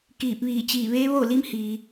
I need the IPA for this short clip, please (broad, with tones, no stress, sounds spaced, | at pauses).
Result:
k iː˧˩ p̚ ʋ iː˧˩ t͡ɕ iː˧˩ ʋ eː˧˥ ʋ o˥˨ l i˧˥ m h iː˩